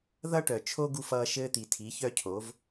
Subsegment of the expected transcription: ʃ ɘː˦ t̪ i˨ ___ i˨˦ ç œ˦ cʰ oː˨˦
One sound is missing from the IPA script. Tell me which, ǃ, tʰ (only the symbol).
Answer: tʰ